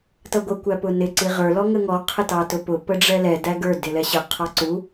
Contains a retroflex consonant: yes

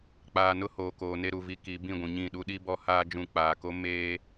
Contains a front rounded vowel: no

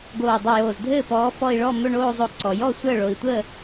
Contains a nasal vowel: no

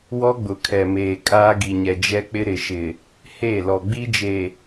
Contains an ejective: yes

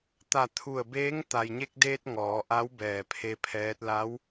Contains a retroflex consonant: no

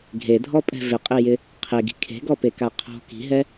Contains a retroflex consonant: no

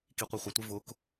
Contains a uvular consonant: yes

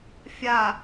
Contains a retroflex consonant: no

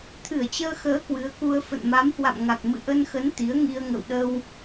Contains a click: no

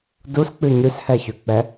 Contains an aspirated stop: no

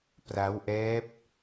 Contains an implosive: no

